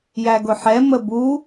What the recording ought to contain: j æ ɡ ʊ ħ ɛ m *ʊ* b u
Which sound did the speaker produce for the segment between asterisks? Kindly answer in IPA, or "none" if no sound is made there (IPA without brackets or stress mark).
ə